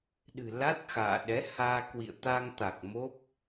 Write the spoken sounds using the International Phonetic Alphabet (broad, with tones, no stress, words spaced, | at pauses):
ɗɨ̤˨˩la˦˥t̚xa̰ː˧˨ ɗɛ˨˦haː˧kwḭ˧˨ə̯ t̪a˧ŋt̪a˨˩k̚ mo˦˥p̚